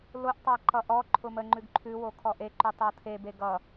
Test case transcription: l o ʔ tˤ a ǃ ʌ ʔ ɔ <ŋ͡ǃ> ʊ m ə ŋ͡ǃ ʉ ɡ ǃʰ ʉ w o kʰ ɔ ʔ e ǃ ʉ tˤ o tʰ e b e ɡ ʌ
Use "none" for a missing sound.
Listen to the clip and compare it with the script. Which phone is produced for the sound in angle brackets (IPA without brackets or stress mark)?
ǃʰ